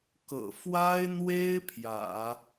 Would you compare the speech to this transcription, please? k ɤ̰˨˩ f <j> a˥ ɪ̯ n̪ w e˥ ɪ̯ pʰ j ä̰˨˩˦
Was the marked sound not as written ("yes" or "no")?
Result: yes